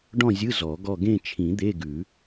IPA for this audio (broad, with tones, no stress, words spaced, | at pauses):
ɖɔ̃˥˧zʲɯ˧˥˧ zɔ˨˩˦ɡɔ˥˧ ɡẽ˥˧t͡ʃʰĩ˨˩˦ d̪e˧˥˧ɡʉ˨˩˦